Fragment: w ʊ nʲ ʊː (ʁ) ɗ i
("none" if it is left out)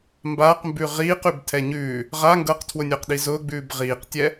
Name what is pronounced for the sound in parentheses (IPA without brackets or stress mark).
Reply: q